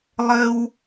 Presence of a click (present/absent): absent